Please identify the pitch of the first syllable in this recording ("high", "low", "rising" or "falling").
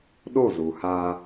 falling